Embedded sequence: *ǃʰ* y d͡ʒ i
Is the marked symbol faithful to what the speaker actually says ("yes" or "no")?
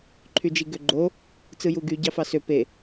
yes